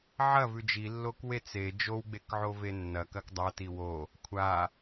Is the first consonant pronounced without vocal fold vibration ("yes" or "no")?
no